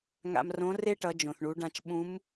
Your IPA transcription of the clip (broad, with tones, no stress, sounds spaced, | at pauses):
ŋ a̰˧ m r õ˧˥ r e˥ ʈ ʌ˩˧ d͡ʒ õ˩ θ ɳ u˩˧ ɖ ã˧ t͡ʃ ɓ ũ˧˥ m